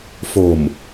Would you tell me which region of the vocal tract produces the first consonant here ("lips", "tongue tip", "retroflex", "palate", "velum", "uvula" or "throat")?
lips